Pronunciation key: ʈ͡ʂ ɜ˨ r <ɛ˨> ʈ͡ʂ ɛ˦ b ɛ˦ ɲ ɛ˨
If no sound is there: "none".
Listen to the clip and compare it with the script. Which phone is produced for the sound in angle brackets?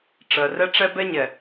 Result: ɛ˦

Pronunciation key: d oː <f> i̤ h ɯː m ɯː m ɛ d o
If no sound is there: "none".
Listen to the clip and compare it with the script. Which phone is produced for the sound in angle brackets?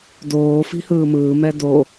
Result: f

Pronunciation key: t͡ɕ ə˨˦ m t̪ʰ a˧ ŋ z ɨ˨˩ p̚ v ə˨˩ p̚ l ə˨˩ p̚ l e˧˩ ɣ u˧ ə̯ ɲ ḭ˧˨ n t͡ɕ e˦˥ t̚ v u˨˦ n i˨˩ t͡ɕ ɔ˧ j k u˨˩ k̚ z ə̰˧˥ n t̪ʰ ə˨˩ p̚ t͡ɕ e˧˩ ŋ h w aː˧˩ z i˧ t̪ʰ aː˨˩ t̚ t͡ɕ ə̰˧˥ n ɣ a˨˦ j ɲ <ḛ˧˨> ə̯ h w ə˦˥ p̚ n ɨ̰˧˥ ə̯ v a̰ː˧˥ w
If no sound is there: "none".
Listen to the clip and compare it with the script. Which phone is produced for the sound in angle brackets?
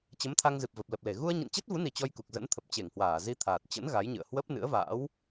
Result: ɨ̰˧˨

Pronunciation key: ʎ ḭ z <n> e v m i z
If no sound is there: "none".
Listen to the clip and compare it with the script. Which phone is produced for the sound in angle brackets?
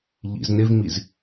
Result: n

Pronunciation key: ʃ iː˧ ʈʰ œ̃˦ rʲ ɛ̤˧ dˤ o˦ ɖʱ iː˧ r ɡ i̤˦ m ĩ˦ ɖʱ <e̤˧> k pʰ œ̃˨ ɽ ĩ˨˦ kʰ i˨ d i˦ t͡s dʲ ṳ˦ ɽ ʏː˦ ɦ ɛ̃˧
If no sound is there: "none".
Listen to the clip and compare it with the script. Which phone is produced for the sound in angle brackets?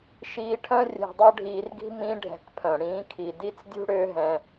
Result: ɛ̤˧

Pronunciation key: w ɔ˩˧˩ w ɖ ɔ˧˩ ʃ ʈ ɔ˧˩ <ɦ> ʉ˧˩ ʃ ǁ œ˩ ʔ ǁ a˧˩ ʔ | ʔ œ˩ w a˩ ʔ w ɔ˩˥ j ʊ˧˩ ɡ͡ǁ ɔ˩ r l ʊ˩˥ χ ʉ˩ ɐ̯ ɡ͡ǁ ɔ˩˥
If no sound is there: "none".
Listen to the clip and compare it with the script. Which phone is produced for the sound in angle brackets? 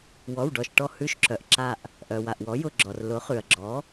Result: h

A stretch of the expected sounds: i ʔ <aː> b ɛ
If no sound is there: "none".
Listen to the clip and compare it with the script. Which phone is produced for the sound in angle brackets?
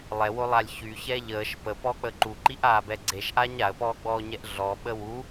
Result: aː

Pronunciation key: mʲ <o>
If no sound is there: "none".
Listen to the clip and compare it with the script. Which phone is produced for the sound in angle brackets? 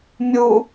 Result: u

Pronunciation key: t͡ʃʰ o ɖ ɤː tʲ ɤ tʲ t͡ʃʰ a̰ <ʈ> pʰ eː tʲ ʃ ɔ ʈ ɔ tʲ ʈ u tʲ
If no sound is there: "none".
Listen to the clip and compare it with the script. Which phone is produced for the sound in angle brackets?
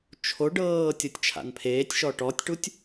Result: n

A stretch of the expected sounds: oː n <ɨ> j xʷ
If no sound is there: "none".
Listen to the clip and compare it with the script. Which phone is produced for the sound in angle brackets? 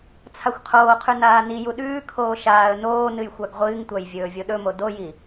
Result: ɨ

